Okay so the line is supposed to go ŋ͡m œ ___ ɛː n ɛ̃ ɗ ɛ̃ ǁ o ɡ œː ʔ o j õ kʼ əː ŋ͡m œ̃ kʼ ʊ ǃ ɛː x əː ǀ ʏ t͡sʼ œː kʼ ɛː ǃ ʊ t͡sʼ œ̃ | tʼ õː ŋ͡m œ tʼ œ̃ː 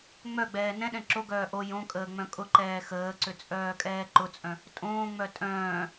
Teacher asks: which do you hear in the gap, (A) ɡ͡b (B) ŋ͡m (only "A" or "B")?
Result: A